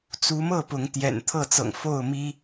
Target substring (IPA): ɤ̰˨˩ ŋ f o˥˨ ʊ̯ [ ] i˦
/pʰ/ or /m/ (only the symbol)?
m